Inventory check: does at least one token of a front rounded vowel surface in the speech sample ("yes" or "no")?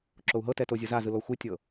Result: no